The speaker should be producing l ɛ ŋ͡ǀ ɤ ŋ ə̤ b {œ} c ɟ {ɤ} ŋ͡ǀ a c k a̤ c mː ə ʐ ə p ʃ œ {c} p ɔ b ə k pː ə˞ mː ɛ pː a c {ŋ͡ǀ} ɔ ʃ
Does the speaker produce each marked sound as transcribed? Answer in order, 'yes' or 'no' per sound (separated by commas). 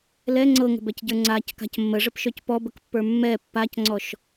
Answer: no, no, yes, yes